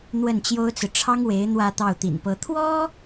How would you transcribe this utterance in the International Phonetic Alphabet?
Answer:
n̪ w ə˥˩ n t͡ɕ j o˥ ʊ̯ t͡s ɹ̩˨ ʈ͡ʂʰ ɑ˥ ŋ w e˧˥ ɪ̯ n̪ w ä˥˧ t̪ ɑ˥˩ ʊ̯ t̪ ḭ˨˩ n p ɤ˧˥ t̪ʰ w ɔ˥

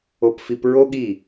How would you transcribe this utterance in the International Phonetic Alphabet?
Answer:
o˦ p f i˦ p ɹ o˦ ɠ i˦˨

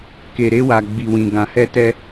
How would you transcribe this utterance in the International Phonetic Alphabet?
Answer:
k e˨ ɾ e˧ w a˨ ɡ͡b i˨ w ĩ˨ ɡ ã˨ h ɛ˧ t ɛ˧

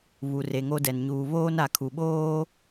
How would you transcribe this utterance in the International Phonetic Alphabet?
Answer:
β u˨ r e˨ ŋ o˦ d ɛ˨ n ɲ uː˨ β oː˦ n a˨ kʰ u˨ ɓ oː˦

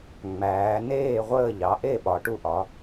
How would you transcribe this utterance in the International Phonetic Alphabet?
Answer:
ŋ͡m æː˩˧ n eː˥˨ ʁʷ əː˥˨ ʎ ɑ˩˥ ʔ e˥˨ ɓ ɒ˩˧ ʈ u˦ ʔ ɒ˩˥

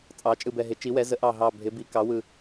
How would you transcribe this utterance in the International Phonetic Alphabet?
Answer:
t͡sʼ ɑ˩˧ t͡ʃʼ ɯ˨˩ b ɛ˨˩ ɦ ɪ˩˧ t͡ʃ i˩˧ w ɛ˩˧ z ə˩˧ ʔ ɑ˨˩ ɦ ɑ˨˩ bʱ ɪ˩˧ b i˩˧ k ɑ˩˧ w ɯ˨˩

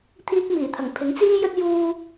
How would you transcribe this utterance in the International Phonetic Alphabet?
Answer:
t̪ʰ iː˧ k̚ m iː˨˩ t̪ʰ ɐ˨˩ ŋ pʰ ɪ˨˥ ŋ t͡s iː˥ j ɵ˥ t̚ j uː˧

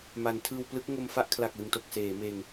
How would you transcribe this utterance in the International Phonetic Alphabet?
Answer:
m a˩˦ n tʰ ɯː˧ w p l ɯ˦˥ k̚ ŋ o˧ m f a˥˩ ʔ kʰ l a˨˩ k̚ l ɯ˨˩ ŋ t o˨˩ k̚ s eː˩˦ m eː˧ ŋ

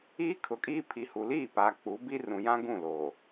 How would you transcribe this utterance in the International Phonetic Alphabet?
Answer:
iː˦ kʰ ʊ˨ kʼ iː˦ pʰ i˨ h u˨ l iː˦˨ p aː˨ k͡p u˨˦ b i˦ r ũ˨ j ã˦ ɡ ũ˦˨ l oː˨

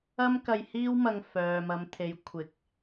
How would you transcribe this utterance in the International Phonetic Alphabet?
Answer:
ɐ˥ m k ɐ˧ j h iː˥ w m ɐ˧ ŋ f œː˨ m ɐ˨˧ m t̪ʰ e˨˥ j kʷʰ ɪ˨˥ k̚

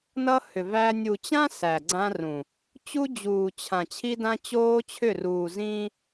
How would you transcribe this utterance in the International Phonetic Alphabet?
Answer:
n ʌ˦ h ʏ˨ v æ˦ nʲ u˨ t͡ɕ ã˦ s æ˨ ɡ͡ǀ ã˦ r ũ˨ | t͡ɕ u˦ d͡ʑ uː˨ t͡ɕʰ ã˨ t͡ɕʰ i˦ d ã˦ t͡ɕ oː˦ t͡ɕʰ ʏ˦˨ r uː˨ z ĩː˦

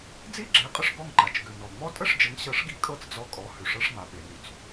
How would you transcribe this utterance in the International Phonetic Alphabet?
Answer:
d͡z i˥ ɡ͡ǁ e˩˥ qʼ ə˧ ʂ ɡ ɔ˥˩ ŋ ǃ a˩ t͡ʃ ɡ ʉ˩ n ɔ˩ ŋ͡m ɔ˥ tʼ ə˥˩ ʂ d͡ʒ ə˩˥ ŋ ɕ ɤ˩˥ ʂ ɡ i˩˥ kʼ ɤ˥˩ t͡s d͡z ɔ˧ kʼ ɔ˩˥ h ʉ˩ ʂ ɤ˧ ʂ ŋ͡m a˩ ɓ e˩ n y˩ t͡s

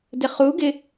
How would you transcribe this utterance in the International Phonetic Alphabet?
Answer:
d ɪ χ u ɡ ɪ

